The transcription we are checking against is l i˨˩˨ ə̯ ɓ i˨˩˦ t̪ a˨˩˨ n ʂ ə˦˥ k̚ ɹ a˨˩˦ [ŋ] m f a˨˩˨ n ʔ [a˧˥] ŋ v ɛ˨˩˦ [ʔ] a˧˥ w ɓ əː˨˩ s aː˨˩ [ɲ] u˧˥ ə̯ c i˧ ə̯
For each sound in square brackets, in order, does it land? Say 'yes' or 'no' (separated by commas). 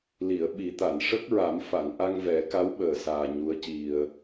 no, no, no, yes